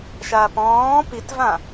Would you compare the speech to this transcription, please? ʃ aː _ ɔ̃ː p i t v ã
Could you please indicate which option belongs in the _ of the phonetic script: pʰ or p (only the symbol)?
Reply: p